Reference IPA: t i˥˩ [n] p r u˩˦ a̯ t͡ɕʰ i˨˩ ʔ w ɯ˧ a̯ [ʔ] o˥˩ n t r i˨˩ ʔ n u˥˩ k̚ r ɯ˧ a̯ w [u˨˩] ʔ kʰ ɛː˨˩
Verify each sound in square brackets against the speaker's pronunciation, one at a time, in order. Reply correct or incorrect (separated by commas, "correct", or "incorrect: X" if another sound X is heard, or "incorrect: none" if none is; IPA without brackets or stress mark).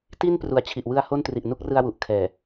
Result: correct, incorrect: h, correct